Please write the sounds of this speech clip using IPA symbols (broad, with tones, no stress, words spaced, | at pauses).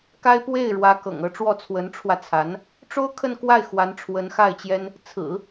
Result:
ka˥ɪ̯ pwe˥˩ɪ̯ ɻwä˧˥kɤ̰˨˩ŋɤ˧˥ʈ͡ʂwɔ˥˩ t͡sʰwə˧˥nʈ͡ʂʰwä˧t͡sʰa˧˥n | ʈ͡ʂo˥ʊ̯kʰə˥˧nkwa˥˩ɪ̯ xwa˧˥nʈ͡ʂʰwə˧˥nxa˥˩ɪ̯t͡ɕjɛ˥n | t͡sʰɹ̩˨˩˦